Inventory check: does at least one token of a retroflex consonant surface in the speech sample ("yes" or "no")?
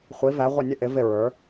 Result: no